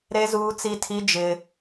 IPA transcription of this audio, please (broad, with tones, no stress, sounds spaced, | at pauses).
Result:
ɾ e˦ z uː˦ t͡s i˦ tʰ i˦ d͡ʒ ɪ˦